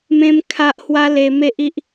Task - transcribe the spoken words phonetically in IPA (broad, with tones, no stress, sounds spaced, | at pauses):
m ẽ˦ m kʰ a˦ ʔ h w a˦ l e˧ m e˦ ʔ i˦ ʔ